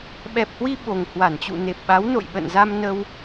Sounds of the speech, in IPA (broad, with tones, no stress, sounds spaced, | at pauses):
ɓ ɛ˨˩ p̚ h w i˧ ɓ o˨˩ ŋ h w a˧˩ n t͡ɕ ṵ˧˨ n e˨˩ p̚ ɓ a˨˦ w n o̰˧˨ j ɓ ə̰˧˨ n z a˧ m n ə˧ w